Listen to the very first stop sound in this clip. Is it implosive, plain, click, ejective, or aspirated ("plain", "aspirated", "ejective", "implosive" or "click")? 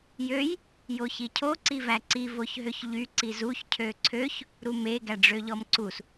aspirated